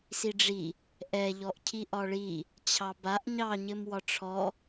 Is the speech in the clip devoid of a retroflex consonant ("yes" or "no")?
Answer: no